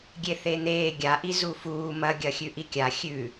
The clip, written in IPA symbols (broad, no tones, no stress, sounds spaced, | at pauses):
ɡʲ e θ e n̪ eː ɡʲ a ʔ i z u f uː m ɐ ɡʲ ɐ xʲ ʉ ʔ i kʲ a xʲ ʉ